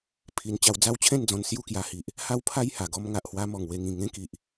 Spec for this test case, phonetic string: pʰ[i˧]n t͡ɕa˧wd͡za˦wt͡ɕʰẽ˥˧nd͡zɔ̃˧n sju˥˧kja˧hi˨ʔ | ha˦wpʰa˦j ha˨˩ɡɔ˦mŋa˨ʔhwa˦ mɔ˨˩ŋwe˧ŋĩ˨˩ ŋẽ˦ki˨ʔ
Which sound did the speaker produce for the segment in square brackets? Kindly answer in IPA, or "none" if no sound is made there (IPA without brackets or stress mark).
i˧